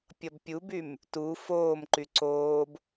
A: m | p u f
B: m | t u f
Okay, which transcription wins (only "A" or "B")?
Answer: B